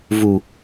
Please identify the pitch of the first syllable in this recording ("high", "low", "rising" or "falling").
low